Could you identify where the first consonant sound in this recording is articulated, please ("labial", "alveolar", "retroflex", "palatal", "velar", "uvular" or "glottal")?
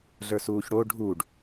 alveolar